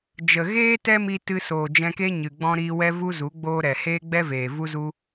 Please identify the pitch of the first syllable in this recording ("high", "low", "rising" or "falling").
low